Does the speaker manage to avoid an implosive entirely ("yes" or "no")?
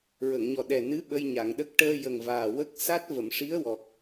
no